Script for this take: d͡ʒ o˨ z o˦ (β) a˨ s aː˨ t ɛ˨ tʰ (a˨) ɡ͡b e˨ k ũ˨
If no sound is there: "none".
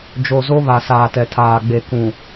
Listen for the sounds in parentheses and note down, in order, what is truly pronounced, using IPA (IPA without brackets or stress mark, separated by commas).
β, aː˨